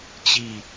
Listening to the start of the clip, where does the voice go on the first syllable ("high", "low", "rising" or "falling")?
falling